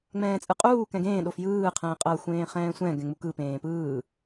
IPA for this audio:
ŋ͡m ɛ̃ː t͡sʼ ɯ qʼ uː k ɛ̃ ɡ ẽː ɗ o f j ɯː qʰ ɛ̃ː qʼ ɤ xʷ ẽː χ ɛ̃ː sʷ ɛ̃ ɡ ɛ̃ ŋ͡m u k ɯ p ẽː p ɯː

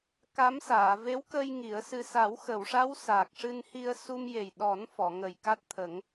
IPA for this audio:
k a˧˥ m s aː˨˩˨ v e˧˥ w k ə˧ j ŋ i˨˩˦ ə̯ s ɨ˧ s a˨˩˦ w x ə˨˩˨ w ʂ a˧˥ w s aː˨˩ k̚ ʂ ɨ˧ n h i˧ ə̯ s u˧ m j e˨˩ j ɗ ɔ˨˩˦ n f ɔ˨˩˨ ŋ ə˨˩ j k a˦˥ t̚ t̪ʰ ə˨˩˦ ŋ

